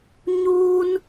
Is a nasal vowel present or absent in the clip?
absent